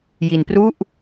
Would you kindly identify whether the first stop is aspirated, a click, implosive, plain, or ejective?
plain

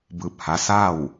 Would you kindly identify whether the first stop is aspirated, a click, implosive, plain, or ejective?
plain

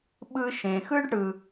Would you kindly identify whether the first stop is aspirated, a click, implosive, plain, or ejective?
implosive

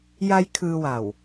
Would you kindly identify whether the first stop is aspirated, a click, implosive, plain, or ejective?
aspirated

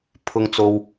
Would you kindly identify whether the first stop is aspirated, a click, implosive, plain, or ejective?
aspirated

